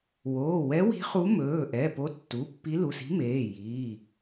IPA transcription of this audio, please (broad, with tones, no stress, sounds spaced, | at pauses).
w oː˩˧˩ w ɛ˧˥ w i̤˧˥ χ u˧˥ m ɵː˩˧˩ ʔ ɛ˩˧˩ p o˧˥ tː u˩˧˩ pː i˧˥ l u˩˧˩ s i̤˧˥ m eː˩˧˩ j iː˩˧˩